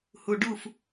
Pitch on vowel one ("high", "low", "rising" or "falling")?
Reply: low